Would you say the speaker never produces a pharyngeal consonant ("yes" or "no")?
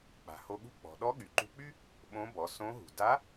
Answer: yes